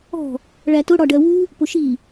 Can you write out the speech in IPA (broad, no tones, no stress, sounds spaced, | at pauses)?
ɔ̤ | ɭ æ t ʊ ɽ ɒ ɖ ɜ w u | p ʊ ʃ i